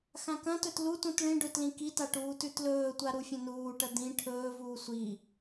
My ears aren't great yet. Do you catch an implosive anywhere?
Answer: no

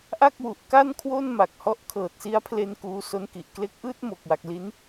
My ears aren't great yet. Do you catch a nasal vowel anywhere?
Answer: no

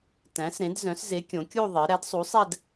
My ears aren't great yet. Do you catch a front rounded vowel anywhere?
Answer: yes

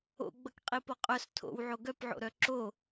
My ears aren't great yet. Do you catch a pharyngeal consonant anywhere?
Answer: yes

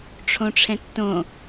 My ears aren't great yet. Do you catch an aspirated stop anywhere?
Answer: yes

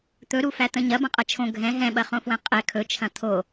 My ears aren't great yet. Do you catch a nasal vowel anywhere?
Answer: yes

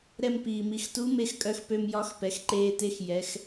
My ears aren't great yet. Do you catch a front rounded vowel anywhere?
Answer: yes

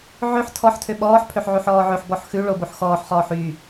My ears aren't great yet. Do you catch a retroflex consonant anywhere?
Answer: yes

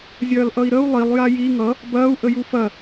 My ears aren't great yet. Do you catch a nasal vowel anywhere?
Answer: no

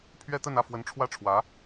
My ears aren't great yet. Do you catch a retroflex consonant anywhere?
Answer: yes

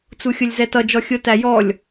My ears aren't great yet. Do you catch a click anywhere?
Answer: no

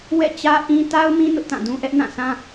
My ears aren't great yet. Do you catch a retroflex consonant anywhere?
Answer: no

